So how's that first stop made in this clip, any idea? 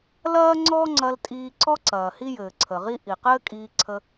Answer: click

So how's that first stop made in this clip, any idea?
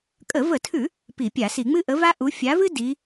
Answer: ejective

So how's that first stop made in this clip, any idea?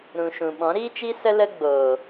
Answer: implosive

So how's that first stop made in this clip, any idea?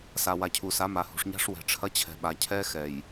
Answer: aspirated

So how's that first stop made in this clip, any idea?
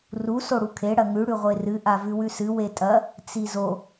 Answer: aspirated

